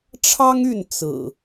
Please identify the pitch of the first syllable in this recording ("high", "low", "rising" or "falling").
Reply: high